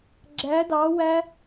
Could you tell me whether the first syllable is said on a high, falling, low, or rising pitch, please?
rising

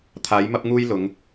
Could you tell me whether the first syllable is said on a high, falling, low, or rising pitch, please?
rising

